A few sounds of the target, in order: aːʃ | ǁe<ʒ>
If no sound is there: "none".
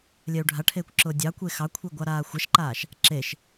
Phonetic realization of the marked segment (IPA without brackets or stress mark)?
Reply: ʃ